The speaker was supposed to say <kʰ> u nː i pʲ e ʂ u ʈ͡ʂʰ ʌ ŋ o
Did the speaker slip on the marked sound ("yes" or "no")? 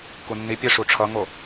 yes